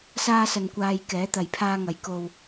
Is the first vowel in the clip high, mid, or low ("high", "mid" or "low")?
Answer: low